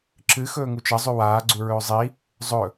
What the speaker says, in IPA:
ǁɨxɵː ŋut͡ʃɐ zˤʉwaː ɡ͡ǀuɹɵːzˤi | zˤɵ

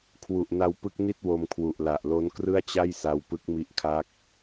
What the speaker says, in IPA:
kʰwu˨˩ʔna˧w pɯ˦˥k̚ni˥˩t̚ wo˧mkʰwu˨˩ʔla˨˩ʔ lo˦˥nkrɯ˥˩a̯t͡ɕa˥˩jsa˧w pɯ˦˥k̚mi˦˥ʔkʰa˦˥k̚

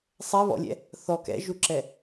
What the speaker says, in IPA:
sˤɛβɔ̰lʲɛ̰ | θɔ kɛ̰ʒuǁɛ

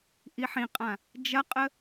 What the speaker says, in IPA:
ʔiħĩqʼã | d͡ʒɐqʼə

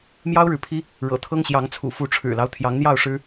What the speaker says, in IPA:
mjɑ˦ʊ̯ɻɻ̩˨pʰi˦ | ɻɤ̰˨˩t̪ʰɤ˦ŋɕjɑ˨˦ŋt͡sʰṵ˨˩ fu˨˦ʈ͡ʂʰɻ̩˨˩lɑ˦ʊ̯ t̪ʰjɑ˨˦ŋn̪jɑ˥˨ʊ̯ ʂɻ̩˦

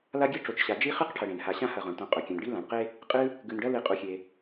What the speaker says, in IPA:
la˦ɡʲɨ˦ ʈ͡ʂo˨t͡ʃɕa˨ d͡ʒi˦χɨ˦qʈʰɐ˨ ɽẽ˩nha˨ɕã˦ hɐ˨ʁõ˩ɳtõ˨ qʼɵ˨kʲã˨nɖi˦ lã˨ɳqe˥ | qʼɨ˦ | ɡʉ˨nɖɐ˦ li˨qʼu˨xʲe˨

